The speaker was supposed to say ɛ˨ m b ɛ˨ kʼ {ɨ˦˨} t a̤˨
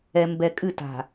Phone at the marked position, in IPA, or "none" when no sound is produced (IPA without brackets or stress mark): ɨ˦˨